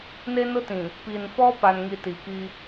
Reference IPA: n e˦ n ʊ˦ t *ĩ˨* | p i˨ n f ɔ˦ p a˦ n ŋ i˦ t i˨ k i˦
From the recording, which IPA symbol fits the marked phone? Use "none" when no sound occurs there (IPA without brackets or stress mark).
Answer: ĩ˨